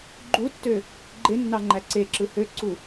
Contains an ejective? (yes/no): no